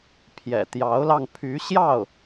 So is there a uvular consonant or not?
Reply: no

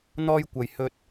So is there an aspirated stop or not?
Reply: no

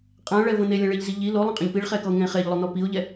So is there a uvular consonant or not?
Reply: yes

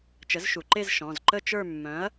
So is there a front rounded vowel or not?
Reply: yes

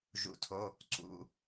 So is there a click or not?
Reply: yes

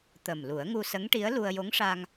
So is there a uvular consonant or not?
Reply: no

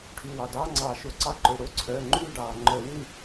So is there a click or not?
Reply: yes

